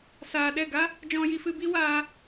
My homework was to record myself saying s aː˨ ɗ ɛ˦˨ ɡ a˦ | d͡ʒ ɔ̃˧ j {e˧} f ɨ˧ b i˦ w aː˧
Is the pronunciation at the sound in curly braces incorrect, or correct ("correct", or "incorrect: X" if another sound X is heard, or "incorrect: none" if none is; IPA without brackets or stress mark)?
incorrect: i˧